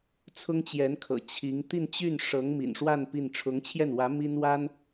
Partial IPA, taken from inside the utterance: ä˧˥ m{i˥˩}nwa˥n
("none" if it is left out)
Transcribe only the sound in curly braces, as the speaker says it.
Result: i˥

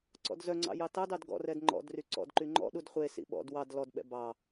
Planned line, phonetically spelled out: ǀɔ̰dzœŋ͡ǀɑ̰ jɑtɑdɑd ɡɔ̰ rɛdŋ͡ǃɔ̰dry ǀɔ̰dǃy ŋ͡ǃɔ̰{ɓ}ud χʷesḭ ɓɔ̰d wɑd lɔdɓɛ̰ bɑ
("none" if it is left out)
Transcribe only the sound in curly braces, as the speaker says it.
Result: ɗ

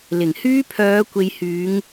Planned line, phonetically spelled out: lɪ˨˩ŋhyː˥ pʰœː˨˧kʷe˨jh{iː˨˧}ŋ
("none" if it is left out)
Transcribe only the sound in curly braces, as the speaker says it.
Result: yː˨˧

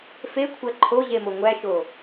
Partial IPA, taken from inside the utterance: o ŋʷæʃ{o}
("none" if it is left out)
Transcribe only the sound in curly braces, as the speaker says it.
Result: o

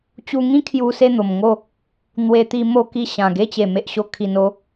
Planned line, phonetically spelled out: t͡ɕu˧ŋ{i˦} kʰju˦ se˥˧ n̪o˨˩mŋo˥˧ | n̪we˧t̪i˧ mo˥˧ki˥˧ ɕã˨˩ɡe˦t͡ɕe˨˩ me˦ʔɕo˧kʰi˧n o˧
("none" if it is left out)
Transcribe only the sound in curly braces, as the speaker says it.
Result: ĩ˦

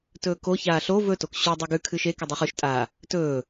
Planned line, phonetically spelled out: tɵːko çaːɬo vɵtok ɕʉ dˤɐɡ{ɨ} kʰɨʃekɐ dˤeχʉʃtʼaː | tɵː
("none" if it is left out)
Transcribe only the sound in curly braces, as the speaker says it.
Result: ʉ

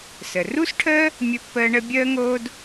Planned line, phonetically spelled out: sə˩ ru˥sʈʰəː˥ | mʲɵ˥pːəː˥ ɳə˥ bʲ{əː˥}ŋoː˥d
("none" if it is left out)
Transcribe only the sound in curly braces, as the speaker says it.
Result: əː˥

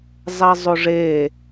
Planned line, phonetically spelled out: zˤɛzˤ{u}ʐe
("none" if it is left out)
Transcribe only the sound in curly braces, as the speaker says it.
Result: o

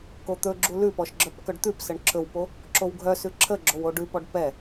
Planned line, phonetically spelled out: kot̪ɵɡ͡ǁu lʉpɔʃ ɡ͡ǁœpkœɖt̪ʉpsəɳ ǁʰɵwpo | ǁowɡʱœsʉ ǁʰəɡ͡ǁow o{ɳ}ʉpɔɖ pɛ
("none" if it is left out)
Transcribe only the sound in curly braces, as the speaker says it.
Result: ɖ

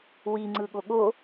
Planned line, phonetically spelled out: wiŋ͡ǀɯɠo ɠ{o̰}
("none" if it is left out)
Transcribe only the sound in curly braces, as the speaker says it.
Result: o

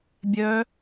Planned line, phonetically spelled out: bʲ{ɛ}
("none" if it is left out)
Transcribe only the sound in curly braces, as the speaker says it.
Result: œ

